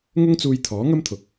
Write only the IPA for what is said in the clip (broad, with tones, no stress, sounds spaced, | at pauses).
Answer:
ŋ ʊ˥ ŋ t͡s uː˧ j t̪ʰ ɔː˨˥ ŋ ɐ˥ m t̪ʰ ʊ˨ k̚